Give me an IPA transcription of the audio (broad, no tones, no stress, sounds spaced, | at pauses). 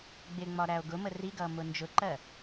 ɡ͡b ɪ ŋ͡m ɒ ɾ æ o̯ ɡ ʊ m ə r i ɡ ʌː m ʊ n d͡ʒ ʊ ǃ ɜ